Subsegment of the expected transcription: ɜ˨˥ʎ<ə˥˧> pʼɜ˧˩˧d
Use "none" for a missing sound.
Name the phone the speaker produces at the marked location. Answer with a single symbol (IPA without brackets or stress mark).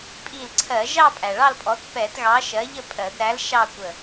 ə˥˧